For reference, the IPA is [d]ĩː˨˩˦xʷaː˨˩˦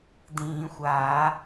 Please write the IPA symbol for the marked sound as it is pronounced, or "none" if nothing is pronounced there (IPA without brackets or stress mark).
d